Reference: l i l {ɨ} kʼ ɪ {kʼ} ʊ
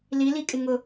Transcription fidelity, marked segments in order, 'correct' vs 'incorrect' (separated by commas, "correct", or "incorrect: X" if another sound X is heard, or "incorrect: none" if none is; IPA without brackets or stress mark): incorrect: i, incorrect: ŋ